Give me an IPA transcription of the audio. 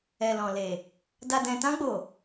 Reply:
ɛ˨ l ɔ̃˨ l e˨ | d a˨ d ɛ̃˨ t ã˧ ɡ͡b o˨

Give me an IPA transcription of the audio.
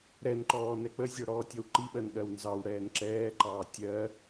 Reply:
ɾ ɛ n ǃ ɔː n ɛ k͡p ə zʲ ɔ ɽ ɔː tʲ ɔ w ǃ i ɓ ɜ n ɠ ɜ w n z ɑ w ɽ ɛː n ǁ ɛː ǃ ɑː tʲ ɜ

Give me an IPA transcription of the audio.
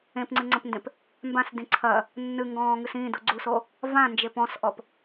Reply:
ẽ p ŋ͡ǀ ɨ ŋ͡ǀ ɐ̃ p n d ẽ p | m b ã s d ĩ ǀʰ ɐ | nː ɨ ŋ ɡ ɔ̃ː ŋ ɨ s ĩ d u ɡ͡ǀ u s o | v ã n d͡ʒ e p ɔ̃ s ʔ ɔ p

